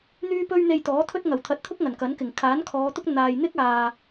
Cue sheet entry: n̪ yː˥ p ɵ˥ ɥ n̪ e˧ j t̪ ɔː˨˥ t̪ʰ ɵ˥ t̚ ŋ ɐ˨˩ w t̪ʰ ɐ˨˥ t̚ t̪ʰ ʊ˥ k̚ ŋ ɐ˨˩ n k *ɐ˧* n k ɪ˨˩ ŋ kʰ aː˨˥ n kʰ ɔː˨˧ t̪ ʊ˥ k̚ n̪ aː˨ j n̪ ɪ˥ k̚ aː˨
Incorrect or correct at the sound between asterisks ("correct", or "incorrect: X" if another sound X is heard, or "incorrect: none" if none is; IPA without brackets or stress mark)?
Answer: incorrect: ɐ˨˥